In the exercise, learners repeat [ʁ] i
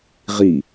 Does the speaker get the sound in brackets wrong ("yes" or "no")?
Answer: no